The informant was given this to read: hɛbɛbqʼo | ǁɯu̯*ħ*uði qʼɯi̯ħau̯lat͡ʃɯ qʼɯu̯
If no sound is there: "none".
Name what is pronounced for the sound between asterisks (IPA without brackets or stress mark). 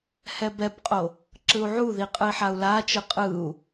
ʕ